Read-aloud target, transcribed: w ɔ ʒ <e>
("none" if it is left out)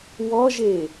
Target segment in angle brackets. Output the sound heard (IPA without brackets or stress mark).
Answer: e